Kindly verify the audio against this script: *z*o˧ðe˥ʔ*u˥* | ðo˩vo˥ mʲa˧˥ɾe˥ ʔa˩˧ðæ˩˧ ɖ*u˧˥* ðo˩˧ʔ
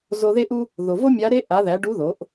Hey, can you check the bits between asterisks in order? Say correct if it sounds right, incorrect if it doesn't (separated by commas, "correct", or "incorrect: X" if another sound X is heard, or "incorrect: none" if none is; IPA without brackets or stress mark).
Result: correct, correct, correct